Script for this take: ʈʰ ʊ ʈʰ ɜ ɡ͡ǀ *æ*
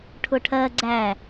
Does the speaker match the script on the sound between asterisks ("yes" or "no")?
yes